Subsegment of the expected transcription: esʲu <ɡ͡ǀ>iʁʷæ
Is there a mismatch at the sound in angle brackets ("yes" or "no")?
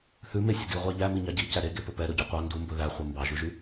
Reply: yes